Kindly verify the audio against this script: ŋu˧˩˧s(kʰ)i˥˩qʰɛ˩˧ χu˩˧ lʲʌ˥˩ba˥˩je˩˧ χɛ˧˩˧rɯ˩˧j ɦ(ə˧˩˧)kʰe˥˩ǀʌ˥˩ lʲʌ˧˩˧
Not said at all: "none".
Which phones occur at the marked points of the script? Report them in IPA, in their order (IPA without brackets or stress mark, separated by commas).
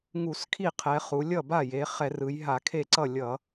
kʰ, a˧˩˧